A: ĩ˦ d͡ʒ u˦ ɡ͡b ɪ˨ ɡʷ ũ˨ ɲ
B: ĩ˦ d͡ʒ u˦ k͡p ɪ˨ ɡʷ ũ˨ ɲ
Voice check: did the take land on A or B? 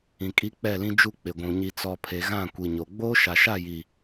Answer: B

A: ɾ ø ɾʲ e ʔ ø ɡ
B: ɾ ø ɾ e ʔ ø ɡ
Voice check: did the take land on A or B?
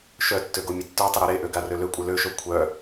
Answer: B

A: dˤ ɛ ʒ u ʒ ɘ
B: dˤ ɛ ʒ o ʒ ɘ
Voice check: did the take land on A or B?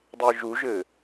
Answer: A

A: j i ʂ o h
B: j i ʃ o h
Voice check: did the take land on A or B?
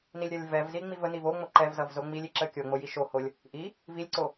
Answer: B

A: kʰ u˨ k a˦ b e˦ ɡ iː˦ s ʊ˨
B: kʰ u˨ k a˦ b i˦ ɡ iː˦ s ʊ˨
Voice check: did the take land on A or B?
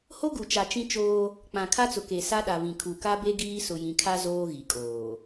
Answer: A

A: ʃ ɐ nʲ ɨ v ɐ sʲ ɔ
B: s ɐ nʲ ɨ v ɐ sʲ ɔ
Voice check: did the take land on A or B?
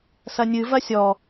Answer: B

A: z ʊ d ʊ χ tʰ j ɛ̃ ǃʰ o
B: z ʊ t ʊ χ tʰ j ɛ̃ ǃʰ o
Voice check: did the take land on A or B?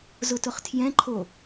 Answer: B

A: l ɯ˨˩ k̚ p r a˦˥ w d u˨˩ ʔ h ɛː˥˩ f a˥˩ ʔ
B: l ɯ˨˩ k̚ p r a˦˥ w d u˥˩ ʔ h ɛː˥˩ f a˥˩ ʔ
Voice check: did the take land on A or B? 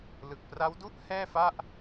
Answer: B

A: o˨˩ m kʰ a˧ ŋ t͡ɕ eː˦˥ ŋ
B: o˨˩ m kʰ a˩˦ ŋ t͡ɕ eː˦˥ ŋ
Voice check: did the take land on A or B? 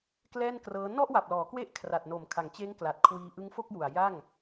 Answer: B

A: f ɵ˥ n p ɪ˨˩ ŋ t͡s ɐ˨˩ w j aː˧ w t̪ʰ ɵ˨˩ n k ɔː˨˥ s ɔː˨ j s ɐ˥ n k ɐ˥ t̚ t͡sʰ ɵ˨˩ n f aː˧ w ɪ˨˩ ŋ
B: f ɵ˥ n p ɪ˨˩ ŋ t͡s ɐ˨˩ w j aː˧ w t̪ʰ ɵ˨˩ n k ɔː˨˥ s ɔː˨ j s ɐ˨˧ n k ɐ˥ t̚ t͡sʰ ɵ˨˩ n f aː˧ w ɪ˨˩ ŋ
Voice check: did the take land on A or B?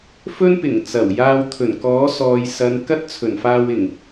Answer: B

